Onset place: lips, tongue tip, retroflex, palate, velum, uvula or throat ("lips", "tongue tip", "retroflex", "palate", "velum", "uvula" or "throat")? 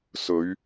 tongue tip